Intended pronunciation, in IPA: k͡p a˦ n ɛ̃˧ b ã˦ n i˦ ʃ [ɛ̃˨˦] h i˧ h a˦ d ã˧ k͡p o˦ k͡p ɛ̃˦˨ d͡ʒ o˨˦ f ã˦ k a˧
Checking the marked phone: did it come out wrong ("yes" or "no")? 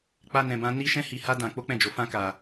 yes